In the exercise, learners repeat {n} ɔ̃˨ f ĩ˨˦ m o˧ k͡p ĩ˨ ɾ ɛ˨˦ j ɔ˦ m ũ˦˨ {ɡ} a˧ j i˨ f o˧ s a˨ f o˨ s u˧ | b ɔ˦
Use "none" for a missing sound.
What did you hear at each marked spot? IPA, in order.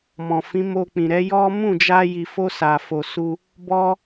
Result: m, d͡ʒ

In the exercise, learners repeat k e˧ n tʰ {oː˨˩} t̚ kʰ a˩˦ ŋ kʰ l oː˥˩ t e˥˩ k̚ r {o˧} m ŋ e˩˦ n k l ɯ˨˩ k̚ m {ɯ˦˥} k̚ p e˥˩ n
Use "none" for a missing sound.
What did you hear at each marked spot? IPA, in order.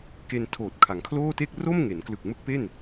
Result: oː˨˩, o˥˩, ɯ˦˥

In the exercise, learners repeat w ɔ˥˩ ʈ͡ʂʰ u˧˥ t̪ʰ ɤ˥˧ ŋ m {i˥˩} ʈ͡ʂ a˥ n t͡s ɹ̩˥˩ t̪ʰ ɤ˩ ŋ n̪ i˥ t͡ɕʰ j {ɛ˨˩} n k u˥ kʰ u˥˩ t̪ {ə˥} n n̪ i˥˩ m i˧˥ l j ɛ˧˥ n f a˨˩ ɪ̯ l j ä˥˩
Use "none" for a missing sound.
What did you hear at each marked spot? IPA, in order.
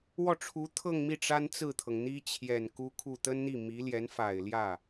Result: i˥˩, ɛ˨˩, ə˥

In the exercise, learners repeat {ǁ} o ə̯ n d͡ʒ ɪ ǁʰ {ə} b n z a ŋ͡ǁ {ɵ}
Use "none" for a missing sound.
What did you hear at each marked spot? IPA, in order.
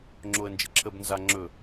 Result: ŋ͡ǁ, ə, ɵ

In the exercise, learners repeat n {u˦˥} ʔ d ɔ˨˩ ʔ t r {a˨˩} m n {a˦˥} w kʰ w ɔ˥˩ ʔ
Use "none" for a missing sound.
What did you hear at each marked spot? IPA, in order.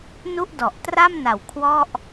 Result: u˥˩, a˥˩, a˨˩

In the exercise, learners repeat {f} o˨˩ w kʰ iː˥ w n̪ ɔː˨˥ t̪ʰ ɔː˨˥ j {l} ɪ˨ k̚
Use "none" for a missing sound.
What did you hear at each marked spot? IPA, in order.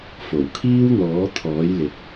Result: f, l

